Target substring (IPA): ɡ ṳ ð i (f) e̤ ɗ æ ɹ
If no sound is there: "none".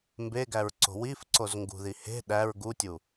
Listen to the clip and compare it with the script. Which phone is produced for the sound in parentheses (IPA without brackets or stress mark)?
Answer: h